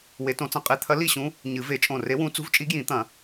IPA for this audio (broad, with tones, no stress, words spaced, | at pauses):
we˨˩˦tõ˨˩˦t͡sɐ̃˧˩ qʼe˧˥t̪ʰɐ˧˥ li˥˨ɕũ˧˥ | ɲɨ˨˩˦ve˨˩˦ t͡ʃʼõ˧˩re˧˥wũ˧˥ t͡sṳ˧˥vt͡ʃʼi˧˥ ɡjĩ˨˩˦t̪ɐ̃˨˩˦